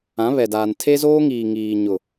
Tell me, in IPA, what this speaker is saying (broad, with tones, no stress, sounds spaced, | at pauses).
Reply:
ã˨˦ β ɛ˨ d aː˨ n tʰ e˦ z oː˦ ŋ iː˨ ŋ iː˨ ɲ ʊ˨